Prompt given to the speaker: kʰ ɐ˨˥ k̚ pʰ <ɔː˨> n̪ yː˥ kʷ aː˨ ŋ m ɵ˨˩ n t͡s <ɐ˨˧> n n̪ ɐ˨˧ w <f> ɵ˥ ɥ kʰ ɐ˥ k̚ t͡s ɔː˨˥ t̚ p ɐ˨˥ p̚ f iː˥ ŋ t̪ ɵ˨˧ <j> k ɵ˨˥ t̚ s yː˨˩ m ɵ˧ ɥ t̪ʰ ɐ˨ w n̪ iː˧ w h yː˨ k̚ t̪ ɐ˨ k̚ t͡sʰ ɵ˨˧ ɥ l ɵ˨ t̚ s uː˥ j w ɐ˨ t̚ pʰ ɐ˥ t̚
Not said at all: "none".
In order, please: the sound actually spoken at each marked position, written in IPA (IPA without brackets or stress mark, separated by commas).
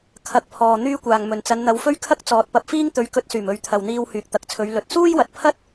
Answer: ɔː˨, ɐ˨˧, f, ɥ